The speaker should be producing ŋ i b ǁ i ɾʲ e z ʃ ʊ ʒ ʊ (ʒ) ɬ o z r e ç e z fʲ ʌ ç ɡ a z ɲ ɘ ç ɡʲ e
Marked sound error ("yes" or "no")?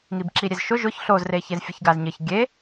yes